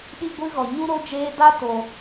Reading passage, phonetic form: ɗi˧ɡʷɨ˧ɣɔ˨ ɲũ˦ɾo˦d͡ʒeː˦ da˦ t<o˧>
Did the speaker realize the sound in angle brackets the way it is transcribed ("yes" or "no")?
yes